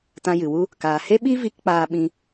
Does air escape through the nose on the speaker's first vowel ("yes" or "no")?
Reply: yes